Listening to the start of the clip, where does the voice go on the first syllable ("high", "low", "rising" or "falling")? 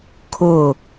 falling